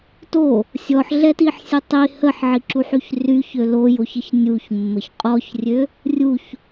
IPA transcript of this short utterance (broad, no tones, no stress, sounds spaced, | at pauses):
t o | sʲ ɔ ħ ɮ ɛ t i ħ sʲ u tˤ i h ə ħ ʕ i ǁ u ħ y ç r y ç ø l o j o ç ə ç nʲ u ç mː ə ç qʼ ɔ ç rʲ ø | rʲ u ç